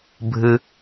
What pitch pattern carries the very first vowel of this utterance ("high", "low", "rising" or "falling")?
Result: low